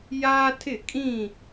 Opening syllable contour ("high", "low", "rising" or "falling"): high